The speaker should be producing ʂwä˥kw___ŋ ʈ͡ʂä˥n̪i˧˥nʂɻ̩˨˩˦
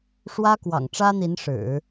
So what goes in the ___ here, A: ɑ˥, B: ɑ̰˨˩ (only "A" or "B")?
B